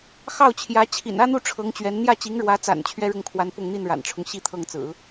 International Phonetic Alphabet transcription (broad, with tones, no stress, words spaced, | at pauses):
xɑ˥˩ʊ̯t͡ɕʰjä˧˥ t͡ɕʰḭ˨˩nä˥n̪u˥˩ ʈ͡ʂʰɤ˧˥ŋt͡ɕɥɛ˧˥n n̪jä˥˩t͡ɕi˧˥ŋɻwä˧˥t͡sa̰˨˩n t͡ɕʰɥɛ˥ɻʊ˥˩ŋkʰwa˧˥n pʊ˥˧ŋn̪i˥˩nɻa̰˨˩nʈ͡ʂʰʊ˦ŋ ɕi˥˧t̪ʰɤ˥˩ŋt͡sɹ̩˨˩˦